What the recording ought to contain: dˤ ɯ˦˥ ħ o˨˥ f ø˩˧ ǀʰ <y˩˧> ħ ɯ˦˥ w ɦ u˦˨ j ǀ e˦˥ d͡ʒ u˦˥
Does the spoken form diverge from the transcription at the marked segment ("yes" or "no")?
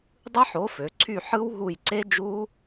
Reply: yes